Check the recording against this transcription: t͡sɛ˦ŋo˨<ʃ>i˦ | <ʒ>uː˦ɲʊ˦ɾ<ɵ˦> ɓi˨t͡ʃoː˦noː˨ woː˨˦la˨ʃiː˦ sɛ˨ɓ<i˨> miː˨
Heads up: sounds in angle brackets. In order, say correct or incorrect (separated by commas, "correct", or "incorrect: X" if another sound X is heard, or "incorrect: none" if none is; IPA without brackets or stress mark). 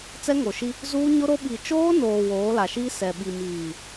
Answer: correct, incorrect: z, incorrect: o˦, correct